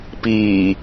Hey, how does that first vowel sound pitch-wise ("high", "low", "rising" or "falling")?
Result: low